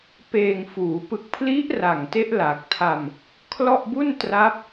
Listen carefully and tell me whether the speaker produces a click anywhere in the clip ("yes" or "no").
no